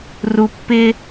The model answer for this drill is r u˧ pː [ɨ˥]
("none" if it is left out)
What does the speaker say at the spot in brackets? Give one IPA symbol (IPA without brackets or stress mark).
ɪ˥